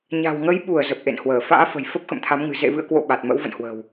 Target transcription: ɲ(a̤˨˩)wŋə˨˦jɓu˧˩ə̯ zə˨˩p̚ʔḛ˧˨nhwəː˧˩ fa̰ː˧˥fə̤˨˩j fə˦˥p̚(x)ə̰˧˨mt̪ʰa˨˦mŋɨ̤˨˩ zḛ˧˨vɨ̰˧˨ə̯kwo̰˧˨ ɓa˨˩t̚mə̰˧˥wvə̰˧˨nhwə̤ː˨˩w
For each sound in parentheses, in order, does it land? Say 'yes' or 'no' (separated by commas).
yes, yes